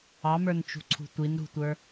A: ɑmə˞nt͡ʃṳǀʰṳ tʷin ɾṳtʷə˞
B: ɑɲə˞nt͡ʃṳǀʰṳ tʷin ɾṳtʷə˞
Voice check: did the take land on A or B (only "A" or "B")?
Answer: A